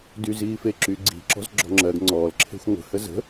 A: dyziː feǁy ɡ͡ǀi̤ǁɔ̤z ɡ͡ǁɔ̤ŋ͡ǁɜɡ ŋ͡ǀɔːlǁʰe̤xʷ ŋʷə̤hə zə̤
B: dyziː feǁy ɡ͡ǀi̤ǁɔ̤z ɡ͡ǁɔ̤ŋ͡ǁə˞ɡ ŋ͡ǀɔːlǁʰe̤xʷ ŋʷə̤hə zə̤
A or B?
A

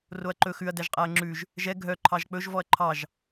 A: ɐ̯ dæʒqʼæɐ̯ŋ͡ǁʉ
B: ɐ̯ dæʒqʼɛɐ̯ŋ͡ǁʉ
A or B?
A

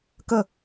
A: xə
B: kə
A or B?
B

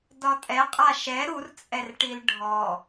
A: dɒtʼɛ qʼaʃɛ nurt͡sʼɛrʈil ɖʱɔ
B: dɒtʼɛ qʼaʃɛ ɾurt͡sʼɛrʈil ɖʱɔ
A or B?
B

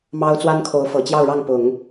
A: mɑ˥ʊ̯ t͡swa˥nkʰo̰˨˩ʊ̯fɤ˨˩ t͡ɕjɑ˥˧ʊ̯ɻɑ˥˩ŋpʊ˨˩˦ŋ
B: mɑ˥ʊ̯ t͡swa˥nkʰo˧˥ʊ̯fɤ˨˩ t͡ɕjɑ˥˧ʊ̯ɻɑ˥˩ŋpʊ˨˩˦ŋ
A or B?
B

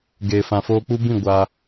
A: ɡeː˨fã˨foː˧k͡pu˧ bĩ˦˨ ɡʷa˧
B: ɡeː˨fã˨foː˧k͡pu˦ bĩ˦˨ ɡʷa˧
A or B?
B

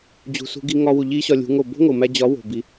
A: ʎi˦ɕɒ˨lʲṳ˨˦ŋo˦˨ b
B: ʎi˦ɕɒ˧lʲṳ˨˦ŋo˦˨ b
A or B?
B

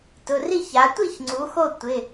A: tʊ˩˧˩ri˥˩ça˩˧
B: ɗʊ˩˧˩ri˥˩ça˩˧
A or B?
A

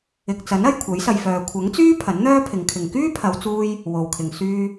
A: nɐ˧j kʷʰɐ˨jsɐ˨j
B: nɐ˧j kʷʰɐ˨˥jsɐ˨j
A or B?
B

